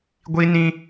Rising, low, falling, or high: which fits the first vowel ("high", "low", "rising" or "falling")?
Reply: high